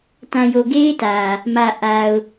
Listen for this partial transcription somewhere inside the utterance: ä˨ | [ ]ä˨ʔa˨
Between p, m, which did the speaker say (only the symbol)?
m